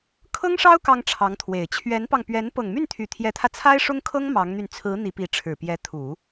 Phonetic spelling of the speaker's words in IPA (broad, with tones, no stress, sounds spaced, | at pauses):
kʰ ɤ˥ ŋ ʂ ɑ˥ ʊ̯ k ɑ˥ ŋ ʈ͡ʂʰ ɑ˧˥ ŋ t̪ʰ w e˨˩ ɪ̯ t͡ɕʰ ɥ ɛ˧˥ n p ɑ˧ ŋ p ɥ ɛ˧˥ n p ɤ˨˩ ŋ m y˥˩ n t̪ʰ y˨˩ t̪ʰ j ɛ˧˥ t̪ʰ ä˧ t͡sʰ a˥ ɪ̯ ʂ ʊ˥ ŋ kʰ ɤ˥ ŋ m ɑ˧˥ ŋ n̪ y˧ n t͡sʰ ɹ̩˧˥ n̪ i˧˥ p i˧˥ ʈ͡ʂʰ ɻ̩˨˩ p j ɛ˧˥ t̪ʰ u˨˩˦